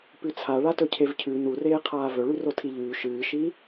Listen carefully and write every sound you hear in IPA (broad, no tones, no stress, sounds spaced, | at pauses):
p ʉ t͡sʰ a ɭ a t ɵ cʰ e v cʰ ʉ n u r eː qʰ aː v ɵ ɭ ʉ r o tʰ i ʎ ʉː ʃ ɨː ʃ i